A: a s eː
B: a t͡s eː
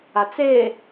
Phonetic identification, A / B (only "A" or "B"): B